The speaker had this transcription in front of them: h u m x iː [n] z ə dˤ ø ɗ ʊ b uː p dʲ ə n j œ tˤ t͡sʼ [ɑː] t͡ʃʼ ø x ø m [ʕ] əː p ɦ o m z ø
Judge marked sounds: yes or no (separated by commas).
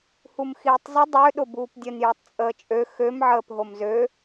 no, no, yes